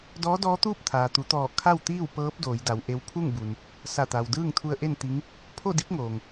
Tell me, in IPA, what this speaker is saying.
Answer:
d ɔː˧˥ d ɔː˧˥ t̪ uː˥˨ p̚ t̪ʰ aː˩ t̪ u˩˧ t̪ ɔː˧˩ kʰ a˥˨ w t̪ iː˥˨ w p ɤː˧˥ p̚ d oː˩˧ j d a˩˧ w ʔ e˧˥ w pʰ u˥˨ ŋ b u˩ n | s a˧˩ t̪ a˩ w d ɯː˥˨ ŋ t̪ʰ u˧ ə̯ ʔ e˥˨ n t̪ i˧˥ ŋ | pʰ o˥˨ d i˧˥ p̚ ŋ oː˩ ŋ

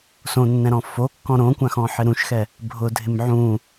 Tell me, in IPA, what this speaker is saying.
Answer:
s õ nː ɛ̃ ɾ ɔ̃ f o kː ɔ̃ ɾ õ kʷ ã x ɔ̃ ħ ɪ ɾ ũ ʃ x ɛ | bʱ ʊ dʱ ɪ m ʕ ũ

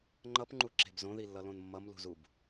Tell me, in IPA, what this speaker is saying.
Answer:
ŋ͡ǃ ʌ p ŋ͡ǃ u ǁ e̤ b z õ ð i lː ʌ l õ n mː ʌ m l ṳ z u b

